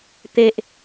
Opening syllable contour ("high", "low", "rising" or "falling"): high